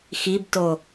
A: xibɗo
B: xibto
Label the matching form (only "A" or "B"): B